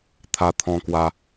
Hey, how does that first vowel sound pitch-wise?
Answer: high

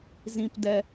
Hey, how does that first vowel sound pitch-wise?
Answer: low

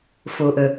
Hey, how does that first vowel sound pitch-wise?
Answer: low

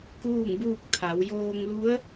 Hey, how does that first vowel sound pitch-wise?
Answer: falling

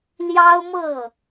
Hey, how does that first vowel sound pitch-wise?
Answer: high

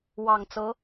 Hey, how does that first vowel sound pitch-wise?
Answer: low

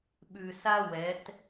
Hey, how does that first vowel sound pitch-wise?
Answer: low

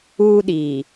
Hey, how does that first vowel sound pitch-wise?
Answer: high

